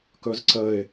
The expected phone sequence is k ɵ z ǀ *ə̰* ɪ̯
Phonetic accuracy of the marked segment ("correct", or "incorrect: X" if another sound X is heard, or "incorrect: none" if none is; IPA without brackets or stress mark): incorrect: ə